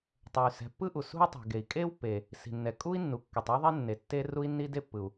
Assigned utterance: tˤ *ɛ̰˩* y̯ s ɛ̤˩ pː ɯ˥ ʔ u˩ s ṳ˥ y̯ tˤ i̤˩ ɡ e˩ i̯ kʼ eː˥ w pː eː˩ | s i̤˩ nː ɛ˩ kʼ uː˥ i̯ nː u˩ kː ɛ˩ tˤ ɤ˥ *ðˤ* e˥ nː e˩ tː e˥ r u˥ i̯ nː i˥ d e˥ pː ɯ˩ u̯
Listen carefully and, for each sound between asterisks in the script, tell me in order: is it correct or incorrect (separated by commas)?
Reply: incorrect, correct